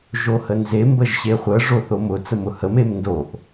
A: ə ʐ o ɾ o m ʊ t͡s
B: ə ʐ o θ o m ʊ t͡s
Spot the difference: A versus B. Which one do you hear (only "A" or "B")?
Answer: B